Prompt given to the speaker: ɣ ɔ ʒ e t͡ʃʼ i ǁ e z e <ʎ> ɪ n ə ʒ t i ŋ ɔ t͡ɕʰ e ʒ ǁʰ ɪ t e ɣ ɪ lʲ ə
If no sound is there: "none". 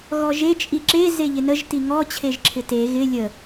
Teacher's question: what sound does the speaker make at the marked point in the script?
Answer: ʎ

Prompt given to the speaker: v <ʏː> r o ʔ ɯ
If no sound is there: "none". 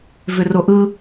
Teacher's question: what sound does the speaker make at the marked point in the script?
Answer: ʏ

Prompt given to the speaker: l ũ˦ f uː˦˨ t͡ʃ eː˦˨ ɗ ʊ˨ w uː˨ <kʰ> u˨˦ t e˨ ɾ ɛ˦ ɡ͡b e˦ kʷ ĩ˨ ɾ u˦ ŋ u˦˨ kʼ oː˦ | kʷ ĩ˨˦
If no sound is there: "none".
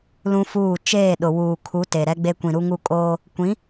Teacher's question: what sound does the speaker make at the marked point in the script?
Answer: kʰ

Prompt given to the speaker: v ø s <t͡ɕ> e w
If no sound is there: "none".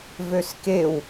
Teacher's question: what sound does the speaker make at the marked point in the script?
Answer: k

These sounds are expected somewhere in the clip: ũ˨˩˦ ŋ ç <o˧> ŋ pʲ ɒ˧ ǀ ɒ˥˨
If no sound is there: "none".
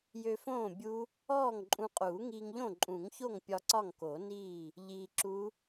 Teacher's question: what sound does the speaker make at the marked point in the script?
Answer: o˥˨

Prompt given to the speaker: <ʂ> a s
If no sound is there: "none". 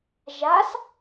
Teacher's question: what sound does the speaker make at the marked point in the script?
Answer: ʒ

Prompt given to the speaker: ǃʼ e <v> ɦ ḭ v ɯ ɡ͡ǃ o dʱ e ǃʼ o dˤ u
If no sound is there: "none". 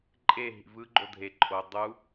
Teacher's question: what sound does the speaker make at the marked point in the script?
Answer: none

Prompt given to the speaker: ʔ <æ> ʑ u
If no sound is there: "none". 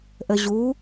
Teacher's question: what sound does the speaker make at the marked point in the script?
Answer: ə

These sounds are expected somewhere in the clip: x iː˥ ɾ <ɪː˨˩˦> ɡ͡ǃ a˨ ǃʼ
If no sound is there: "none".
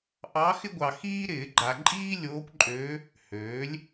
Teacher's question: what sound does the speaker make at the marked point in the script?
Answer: ɪː˨˩˦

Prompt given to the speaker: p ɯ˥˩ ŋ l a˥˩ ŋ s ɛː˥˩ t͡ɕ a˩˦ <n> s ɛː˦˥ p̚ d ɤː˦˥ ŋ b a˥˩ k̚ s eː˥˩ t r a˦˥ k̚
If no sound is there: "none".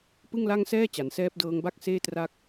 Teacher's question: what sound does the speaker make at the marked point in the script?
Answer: n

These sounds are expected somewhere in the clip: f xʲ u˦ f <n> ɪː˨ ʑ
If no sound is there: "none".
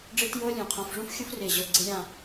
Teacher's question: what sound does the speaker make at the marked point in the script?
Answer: r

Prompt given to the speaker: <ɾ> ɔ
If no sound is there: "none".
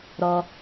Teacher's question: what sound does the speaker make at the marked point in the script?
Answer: ɾ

